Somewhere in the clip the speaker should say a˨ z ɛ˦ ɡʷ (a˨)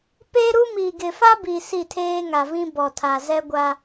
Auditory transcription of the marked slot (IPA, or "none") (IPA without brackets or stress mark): a˦